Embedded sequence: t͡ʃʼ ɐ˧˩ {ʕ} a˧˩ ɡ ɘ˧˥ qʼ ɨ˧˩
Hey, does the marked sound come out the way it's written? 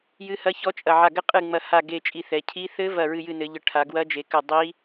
yes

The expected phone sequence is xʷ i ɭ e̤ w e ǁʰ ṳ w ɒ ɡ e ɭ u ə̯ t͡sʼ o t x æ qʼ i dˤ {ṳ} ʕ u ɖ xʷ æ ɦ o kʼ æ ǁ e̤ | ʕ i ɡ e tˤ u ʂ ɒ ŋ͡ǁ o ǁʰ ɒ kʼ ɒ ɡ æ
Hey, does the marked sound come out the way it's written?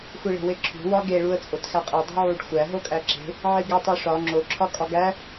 yes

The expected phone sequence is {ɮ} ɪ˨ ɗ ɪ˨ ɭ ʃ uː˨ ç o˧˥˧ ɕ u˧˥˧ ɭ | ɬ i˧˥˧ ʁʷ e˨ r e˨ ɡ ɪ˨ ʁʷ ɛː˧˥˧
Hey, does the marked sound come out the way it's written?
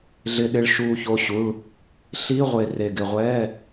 yes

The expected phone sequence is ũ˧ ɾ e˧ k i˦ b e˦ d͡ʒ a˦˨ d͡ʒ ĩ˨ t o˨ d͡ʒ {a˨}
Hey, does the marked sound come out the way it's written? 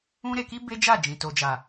yes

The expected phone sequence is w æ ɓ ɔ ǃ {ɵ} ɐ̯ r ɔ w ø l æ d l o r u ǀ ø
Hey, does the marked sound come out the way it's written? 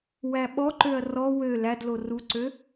no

